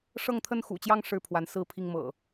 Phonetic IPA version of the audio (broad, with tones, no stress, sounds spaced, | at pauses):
ʂ ɤ˥˨ ŋ t̪ʰ ə˥˨ n x ṵ˨˩ t͡ɕ j ɑ˦ ŋ ʂ ɻ̩˥˨ pʰ w a˨˦ n s ɹ̩˥˨ pʰ i˥˨ ŋ m ɤ̰˨˩